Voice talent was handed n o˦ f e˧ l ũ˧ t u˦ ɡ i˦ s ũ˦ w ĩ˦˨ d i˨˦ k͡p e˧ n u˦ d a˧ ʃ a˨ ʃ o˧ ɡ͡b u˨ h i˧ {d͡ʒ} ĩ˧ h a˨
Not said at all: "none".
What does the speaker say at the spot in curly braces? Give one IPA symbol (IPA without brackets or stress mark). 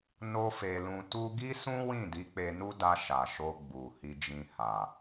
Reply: d͡ʒ